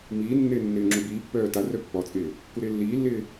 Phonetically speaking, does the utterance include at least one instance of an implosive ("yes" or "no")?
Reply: no